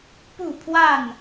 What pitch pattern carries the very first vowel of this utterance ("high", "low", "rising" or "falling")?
falling